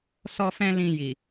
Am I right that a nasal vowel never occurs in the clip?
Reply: no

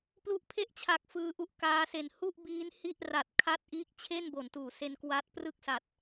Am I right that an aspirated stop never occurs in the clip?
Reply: no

